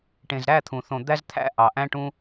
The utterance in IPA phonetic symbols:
ʈẽ˨zɾæ˦˨t̪ʰũ˨θõ˨ d̪æ˦zt̪ʰæ̰˦ ʔɑ˨ʔæ̃˦ʈũ˦

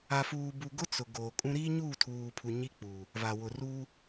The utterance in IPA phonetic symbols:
a˨fuː˨bu˨ɡʊ˦ t͡sʊ˨ ɡoː˨kʼũ˦ ɾiː˦ɲuː˦˨tʰuː˨pʰu˨ ɲi˦k͡puː˨ | va˨wʊ˨ruː˦

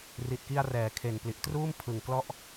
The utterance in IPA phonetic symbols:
ri˨˩t̚ki˧a̯rɛː˩˦ kʰe˨˩npli˨˩ʔ truː˥˩m pʰɯ˨˩ŋklɔ˥˩ʔ

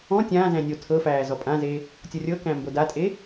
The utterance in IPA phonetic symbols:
ɔ̃ tʲãːzæ̃ nʲo tʰɤfæː zɔpʼãze | tʲɔrʲɤkæ̃ mbodatʼe

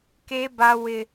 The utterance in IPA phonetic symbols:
ke˦ba˦ wɪ˦

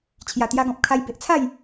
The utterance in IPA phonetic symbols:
t͡ɕʰja˨˩t̪ja˧ɡɔ̃˨p̚kʰa˧j be˨ʔt͡sʰa˥˧j

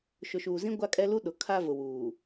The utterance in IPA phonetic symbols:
ʃʊ˨ʃuː˨zĩ˦ ɡʷa˦kʼɛ˦lu˦ ɗʊ˨kʰa˦vʊ˨ wuː˨

